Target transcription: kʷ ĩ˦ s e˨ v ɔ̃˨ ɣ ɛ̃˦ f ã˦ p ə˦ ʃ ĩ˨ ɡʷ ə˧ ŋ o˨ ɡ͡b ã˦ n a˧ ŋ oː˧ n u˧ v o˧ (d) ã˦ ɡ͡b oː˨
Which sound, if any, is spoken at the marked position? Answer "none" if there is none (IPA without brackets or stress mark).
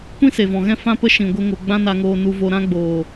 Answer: ɾ